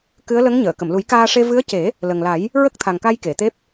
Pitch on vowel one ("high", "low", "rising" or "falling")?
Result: rising